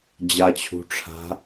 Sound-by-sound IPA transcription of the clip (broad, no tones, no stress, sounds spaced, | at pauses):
d͡ʑ a t͡ɕʰ ṳ ʈ͡ʂʰ a̤